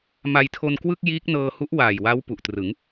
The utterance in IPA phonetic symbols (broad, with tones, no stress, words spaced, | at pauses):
ma˧jtʰo˧nkwɯ˥˩k̚ jiː˦˥k̚nɤː˧hu˦˥ʔ waː˨˩jwa˦˥w pu˨˩ʔtrɯ˩˦ŋ